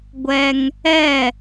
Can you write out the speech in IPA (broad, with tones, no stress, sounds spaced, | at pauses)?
ɡʷ ɛ˦ ŋ | ɛ˦˨